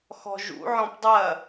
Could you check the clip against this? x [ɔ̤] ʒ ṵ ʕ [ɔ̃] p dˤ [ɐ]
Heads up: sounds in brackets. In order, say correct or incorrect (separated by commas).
correct, correct, correct